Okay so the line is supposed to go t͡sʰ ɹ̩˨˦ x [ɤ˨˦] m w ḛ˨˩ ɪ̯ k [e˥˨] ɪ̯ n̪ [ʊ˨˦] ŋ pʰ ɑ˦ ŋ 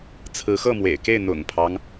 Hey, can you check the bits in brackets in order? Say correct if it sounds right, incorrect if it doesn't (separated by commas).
incorrect, correct, incorrect